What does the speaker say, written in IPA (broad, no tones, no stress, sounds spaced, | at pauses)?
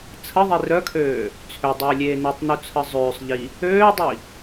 t͡sʰ ə ðˤ i r œ kʰ øː | t͡sʰ ø dˤ øː lʲ eː n u tˤ n u t͡sʰ ə zˤ øː sˤ ʎ i | øː dˤ i